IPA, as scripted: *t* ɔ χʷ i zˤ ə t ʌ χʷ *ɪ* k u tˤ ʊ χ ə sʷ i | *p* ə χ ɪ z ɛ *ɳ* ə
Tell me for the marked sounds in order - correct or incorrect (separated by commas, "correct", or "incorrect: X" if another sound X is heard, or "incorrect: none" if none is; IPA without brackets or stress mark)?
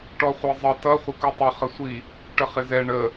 incorrect: ʈ, correct, incorrect: ʈ, correct